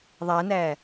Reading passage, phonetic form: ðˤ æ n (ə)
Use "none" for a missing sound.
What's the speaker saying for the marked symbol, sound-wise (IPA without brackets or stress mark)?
æ